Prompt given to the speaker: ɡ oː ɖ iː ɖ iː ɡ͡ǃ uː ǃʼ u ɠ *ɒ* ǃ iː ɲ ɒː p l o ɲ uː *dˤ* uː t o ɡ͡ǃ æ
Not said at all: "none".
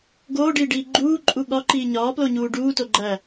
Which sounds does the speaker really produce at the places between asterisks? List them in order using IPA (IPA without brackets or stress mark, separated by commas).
ɒ, ɖ